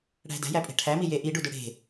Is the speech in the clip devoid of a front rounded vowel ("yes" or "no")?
no